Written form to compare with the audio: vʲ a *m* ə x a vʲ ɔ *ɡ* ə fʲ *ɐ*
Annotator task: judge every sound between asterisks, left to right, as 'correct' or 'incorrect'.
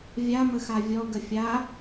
correct, correct, incorrect: a

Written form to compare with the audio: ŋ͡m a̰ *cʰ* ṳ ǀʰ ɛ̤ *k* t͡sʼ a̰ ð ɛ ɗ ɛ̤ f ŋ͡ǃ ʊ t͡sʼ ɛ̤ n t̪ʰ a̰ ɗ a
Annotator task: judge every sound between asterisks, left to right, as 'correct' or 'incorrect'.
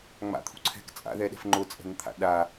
incorrect: t̪ʰ, correct

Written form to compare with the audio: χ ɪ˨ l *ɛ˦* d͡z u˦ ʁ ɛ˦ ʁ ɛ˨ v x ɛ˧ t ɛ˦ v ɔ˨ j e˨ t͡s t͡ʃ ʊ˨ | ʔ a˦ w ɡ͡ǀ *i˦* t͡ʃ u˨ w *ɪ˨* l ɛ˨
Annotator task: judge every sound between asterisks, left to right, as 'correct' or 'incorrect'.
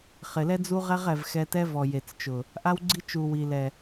correct, correct, incorrect: i˨

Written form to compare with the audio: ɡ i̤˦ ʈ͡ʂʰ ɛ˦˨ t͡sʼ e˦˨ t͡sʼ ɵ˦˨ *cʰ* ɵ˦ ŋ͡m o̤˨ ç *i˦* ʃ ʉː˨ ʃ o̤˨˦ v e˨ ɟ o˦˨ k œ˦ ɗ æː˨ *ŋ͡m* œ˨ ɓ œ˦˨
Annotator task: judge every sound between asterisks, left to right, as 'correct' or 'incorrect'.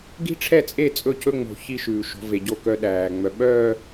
correct, correct, correct

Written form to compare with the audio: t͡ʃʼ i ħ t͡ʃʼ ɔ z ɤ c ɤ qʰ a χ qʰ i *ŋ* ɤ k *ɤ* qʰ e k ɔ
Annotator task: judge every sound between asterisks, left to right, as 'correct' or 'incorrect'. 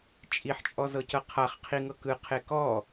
correct, incorrect: ɯ

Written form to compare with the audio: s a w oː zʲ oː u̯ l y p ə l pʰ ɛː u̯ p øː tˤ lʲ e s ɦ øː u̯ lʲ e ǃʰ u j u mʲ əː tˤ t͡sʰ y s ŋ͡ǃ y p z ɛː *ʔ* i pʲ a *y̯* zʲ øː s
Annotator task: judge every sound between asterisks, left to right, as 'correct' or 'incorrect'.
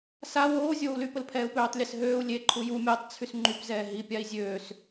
incorrect: ɦ, incorrect: i̯

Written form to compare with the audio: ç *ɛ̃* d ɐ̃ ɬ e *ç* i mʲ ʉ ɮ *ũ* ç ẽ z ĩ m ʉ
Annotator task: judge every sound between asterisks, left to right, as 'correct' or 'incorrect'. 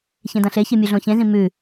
incorrect: ẽ, correct, incorrect: õ

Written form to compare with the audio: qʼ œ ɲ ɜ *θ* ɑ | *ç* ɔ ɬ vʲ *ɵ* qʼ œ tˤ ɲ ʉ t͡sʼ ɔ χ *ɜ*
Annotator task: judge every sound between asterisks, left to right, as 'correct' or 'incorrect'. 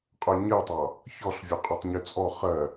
incorrect: tˤ, correct, incorrect: œ, correct

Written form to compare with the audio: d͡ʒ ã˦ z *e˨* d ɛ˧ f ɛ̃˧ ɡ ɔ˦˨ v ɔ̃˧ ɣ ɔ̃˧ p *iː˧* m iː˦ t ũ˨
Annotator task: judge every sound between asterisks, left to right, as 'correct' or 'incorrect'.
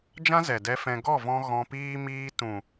incorrect: ɛ˨, incorrect: iː˦

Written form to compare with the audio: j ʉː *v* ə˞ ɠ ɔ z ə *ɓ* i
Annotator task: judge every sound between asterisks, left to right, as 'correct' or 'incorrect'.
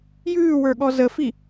incorrect: w, incorrect: f

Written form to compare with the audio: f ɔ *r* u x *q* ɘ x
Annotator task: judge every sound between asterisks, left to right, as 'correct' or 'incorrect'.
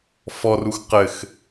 correct, correct

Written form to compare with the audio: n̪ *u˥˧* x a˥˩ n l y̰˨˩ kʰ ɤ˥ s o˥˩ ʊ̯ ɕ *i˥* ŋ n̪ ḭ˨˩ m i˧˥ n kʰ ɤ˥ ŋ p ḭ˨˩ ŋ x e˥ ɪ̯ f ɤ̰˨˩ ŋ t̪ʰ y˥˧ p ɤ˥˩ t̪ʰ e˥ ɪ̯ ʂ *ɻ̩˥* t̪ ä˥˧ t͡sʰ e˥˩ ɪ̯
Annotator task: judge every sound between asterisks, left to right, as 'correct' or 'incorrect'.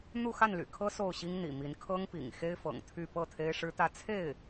correct, correct, correct

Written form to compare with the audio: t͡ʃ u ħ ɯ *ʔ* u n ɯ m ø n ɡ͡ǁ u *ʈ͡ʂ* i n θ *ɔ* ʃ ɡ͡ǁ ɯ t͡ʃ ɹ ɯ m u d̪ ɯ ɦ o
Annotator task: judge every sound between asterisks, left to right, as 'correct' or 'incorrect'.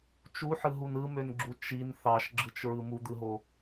incorrect: ɦ, incorrect: t͡ʃ, incorrect: ɑ

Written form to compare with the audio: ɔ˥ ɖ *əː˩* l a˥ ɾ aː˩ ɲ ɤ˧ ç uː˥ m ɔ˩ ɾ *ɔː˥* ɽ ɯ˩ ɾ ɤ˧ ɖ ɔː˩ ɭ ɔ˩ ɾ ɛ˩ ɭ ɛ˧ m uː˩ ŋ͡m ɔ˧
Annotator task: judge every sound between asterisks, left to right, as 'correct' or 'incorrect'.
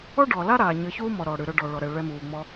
incorrect: ɔː˩, incorrect: ɔː˩

